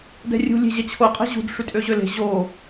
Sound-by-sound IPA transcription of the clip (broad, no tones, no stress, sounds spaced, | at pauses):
d ɛ̤ rʲ ṳ lʲ e̤ ʑ ɛ t͡ɕʰ o qʼ ɛ̤ ʑ ṳ d ʂ y tʼ ø ʑ ø l e̤ ʑ o